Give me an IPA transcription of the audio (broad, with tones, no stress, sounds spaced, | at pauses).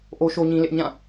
ʔ o˦ ʃ o˦ ɲ ĩ˦ l ɪ˦ ʔ ɲ ã˦˨